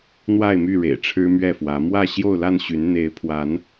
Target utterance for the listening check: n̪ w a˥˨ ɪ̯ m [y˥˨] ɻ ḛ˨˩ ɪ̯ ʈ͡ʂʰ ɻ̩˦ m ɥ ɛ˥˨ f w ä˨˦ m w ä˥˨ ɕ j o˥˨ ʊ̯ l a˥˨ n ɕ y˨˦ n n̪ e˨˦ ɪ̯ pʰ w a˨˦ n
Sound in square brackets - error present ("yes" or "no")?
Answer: no